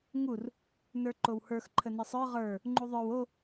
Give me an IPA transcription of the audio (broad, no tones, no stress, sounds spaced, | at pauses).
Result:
ŋ u r | n ə˞ ǃ o w h ə˞ x ǃʰ ə n ə sˤ ə˞ ʁ ə˞ | ŋ͡ǃ u ðˤ ə˞ w o